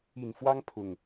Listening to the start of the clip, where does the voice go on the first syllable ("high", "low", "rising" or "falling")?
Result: low